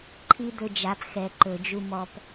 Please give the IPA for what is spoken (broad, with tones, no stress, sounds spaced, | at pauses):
ǃʰ i˦ d̪ ɵ˧ d͡ʒ a˨˦ p x ɛ˨ ǃ ɵ˨ d͡ʒ u˧ m ɔ˨ p